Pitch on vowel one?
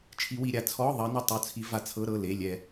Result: rising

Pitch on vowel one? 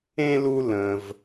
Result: high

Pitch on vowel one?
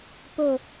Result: falling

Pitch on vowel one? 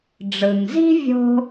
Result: low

